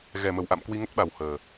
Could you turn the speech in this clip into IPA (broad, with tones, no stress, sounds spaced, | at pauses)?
ɣ ɛ˨˩ m ə˨˩ w ʔ a̰˧˨ m k w i˧ ŋ ə˦˥ t̚ ɓ a˨˩ w h əː˨˩